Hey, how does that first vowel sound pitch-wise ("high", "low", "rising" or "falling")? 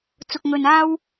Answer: low